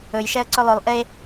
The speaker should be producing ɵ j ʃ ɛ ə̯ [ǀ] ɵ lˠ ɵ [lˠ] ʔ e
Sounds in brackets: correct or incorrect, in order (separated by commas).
correct, correct